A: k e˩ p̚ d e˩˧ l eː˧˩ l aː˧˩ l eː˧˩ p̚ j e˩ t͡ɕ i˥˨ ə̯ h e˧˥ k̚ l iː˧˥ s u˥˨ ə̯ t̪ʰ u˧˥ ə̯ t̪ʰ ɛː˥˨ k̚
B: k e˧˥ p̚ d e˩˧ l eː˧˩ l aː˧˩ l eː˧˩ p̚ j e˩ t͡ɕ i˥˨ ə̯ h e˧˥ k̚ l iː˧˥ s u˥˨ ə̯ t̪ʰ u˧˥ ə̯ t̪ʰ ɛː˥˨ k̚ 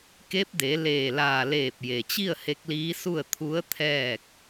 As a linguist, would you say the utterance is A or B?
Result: B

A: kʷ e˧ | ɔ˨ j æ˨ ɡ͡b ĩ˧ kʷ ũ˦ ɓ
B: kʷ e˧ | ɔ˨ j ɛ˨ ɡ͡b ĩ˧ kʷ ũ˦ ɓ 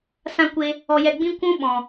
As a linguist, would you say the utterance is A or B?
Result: B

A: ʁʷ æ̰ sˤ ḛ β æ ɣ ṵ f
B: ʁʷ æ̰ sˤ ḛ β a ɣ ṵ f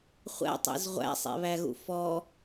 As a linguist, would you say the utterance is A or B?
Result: A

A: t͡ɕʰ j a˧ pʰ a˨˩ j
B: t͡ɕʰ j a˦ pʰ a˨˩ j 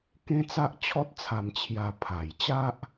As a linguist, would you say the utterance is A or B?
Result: A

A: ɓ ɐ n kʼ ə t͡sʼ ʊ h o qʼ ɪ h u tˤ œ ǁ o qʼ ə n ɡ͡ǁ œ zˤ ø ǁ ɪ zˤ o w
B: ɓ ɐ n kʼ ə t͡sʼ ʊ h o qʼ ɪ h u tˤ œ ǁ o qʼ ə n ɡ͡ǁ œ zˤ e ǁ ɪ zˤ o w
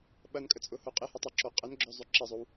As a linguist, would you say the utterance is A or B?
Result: A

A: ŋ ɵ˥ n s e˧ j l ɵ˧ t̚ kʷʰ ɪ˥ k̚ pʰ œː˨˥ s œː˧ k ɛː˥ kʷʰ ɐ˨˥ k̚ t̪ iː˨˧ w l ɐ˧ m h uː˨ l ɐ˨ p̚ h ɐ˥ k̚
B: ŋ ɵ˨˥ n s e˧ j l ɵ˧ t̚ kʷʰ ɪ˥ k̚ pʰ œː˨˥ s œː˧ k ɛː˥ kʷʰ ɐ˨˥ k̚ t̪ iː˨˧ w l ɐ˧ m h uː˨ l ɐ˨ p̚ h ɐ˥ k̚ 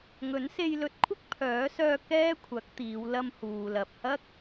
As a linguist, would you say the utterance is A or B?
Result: B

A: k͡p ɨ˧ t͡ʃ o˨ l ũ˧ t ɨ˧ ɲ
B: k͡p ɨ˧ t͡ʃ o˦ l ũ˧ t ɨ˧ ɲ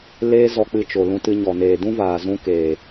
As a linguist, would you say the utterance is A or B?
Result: A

